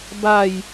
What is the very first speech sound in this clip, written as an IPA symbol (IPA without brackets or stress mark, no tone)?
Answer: b